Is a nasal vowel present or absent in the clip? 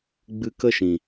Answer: present